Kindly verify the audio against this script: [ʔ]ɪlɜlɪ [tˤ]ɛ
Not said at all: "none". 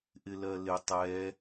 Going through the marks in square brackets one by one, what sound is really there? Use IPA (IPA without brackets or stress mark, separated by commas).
ʔ, tˤ